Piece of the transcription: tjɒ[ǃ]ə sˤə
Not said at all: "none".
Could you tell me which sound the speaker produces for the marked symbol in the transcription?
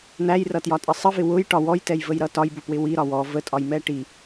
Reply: tʼ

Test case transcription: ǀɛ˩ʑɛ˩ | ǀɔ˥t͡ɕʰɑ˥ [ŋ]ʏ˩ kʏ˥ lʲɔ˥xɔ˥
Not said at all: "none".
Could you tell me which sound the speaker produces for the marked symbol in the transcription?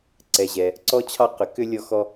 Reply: q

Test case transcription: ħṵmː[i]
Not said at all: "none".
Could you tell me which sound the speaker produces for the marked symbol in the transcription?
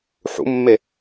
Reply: e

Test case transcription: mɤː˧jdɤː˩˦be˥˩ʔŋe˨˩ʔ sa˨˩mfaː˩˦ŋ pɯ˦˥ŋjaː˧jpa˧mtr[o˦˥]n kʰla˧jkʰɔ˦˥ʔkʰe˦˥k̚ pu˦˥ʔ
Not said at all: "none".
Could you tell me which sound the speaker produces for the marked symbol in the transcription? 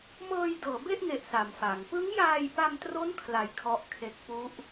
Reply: o˦˥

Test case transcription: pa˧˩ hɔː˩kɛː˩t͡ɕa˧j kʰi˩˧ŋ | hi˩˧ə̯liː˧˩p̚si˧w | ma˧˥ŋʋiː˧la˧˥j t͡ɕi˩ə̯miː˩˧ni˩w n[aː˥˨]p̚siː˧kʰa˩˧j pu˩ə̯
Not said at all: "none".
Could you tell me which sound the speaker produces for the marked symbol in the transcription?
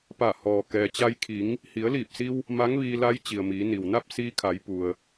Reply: a˥˨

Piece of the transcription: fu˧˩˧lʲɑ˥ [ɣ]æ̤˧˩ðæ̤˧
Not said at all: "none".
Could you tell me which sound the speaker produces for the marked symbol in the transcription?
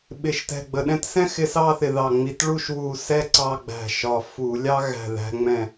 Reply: ɣ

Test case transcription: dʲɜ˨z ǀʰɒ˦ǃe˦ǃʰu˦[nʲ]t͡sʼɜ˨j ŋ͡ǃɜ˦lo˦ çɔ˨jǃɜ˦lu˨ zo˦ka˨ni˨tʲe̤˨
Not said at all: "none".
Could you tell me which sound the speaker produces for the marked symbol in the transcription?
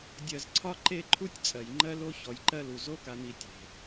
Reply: tʲ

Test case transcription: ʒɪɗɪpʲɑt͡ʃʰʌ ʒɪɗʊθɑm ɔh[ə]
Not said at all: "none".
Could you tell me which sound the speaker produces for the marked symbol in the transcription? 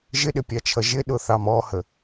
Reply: ə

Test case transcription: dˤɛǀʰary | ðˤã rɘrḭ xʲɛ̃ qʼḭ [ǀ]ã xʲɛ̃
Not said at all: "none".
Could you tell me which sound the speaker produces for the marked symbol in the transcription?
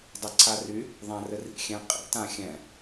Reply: t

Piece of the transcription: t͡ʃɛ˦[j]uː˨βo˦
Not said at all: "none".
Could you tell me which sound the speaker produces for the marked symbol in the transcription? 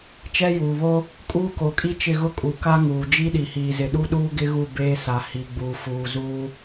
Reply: j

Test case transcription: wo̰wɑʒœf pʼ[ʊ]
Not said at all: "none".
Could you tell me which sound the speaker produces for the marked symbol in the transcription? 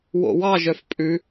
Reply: ʉ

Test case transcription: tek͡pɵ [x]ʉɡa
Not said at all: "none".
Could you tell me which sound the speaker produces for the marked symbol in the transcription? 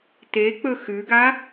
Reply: x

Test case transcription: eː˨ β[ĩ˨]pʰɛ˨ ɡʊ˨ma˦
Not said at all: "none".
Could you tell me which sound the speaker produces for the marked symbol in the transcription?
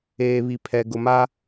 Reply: i˨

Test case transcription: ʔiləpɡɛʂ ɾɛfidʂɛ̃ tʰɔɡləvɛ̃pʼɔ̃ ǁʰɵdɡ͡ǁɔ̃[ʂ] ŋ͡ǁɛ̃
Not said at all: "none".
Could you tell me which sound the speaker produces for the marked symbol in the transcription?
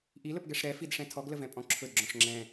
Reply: ʂ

